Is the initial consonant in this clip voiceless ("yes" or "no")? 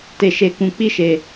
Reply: yes